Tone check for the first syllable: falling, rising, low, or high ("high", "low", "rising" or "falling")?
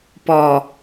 low